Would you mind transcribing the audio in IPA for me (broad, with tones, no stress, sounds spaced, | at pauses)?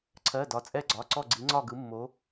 ǀʰ ɜ˩˧˩ d ɒ˩˧ t͡sʼ ɛ˧˩ ɡ͡ǀ ɒ˩˧˩ ǀ ɔ˧˩ ɡ͡ǀ i˩˧ ŋ͡ǀ ɒ˧˩ ɡ ɯ˩˧ mː o˩˧